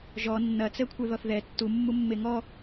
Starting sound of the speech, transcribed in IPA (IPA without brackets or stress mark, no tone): ʒ